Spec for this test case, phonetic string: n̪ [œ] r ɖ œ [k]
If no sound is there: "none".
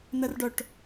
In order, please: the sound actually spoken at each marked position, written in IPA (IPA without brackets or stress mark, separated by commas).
ɛ, ʈ